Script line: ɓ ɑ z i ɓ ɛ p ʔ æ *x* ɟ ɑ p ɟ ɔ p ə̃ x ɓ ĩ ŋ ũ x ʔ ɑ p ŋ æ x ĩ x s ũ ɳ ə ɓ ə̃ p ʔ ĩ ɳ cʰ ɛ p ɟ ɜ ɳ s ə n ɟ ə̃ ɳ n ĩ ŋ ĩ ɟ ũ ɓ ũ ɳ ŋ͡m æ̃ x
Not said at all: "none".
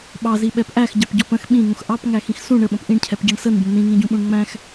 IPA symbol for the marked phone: x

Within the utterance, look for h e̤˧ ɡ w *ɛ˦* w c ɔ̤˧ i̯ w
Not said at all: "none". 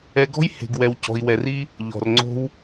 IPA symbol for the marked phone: ɛ˧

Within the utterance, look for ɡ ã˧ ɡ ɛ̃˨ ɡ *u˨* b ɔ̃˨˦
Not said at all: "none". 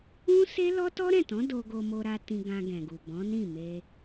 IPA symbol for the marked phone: u˨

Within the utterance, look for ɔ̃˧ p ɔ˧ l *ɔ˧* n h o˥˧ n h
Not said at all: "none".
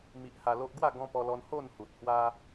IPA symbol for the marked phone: ɔ˧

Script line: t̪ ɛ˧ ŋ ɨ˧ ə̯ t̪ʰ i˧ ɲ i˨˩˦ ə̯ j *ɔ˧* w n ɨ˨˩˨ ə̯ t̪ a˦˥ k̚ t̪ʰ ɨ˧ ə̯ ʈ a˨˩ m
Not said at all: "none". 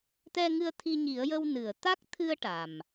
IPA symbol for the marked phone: ə˧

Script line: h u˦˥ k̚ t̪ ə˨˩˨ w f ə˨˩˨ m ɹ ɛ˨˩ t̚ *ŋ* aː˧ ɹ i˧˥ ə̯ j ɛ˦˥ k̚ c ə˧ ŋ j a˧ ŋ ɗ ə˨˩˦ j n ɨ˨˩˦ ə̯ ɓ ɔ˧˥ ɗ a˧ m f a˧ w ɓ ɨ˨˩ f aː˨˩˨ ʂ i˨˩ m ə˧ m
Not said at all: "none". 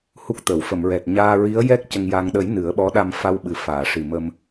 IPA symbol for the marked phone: ɲ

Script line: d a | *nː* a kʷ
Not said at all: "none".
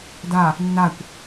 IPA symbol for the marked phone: nː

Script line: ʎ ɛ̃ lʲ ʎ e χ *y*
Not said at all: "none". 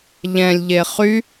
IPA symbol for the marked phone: y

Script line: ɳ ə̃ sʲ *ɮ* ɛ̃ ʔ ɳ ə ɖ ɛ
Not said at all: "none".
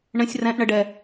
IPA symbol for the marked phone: r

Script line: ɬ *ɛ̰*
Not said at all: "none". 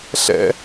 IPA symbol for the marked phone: ɛ̰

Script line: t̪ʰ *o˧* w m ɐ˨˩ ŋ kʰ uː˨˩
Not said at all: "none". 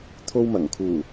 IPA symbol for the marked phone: o˧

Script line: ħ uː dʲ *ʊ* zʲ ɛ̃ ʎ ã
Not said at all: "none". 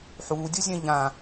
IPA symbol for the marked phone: ʊ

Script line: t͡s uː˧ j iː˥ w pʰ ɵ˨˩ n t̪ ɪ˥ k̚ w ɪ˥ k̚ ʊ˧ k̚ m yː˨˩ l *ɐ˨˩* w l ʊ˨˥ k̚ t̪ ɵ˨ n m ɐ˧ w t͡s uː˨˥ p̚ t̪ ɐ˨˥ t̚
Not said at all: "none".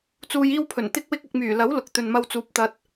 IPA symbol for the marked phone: ɐ˨˥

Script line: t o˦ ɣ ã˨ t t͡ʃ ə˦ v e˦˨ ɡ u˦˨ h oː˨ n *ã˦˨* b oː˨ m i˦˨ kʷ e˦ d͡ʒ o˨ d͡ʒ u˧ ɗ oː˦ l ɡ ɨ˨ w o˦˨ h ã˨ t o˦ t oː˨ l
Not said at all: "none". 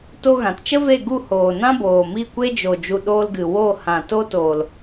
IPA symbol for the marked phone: ã˦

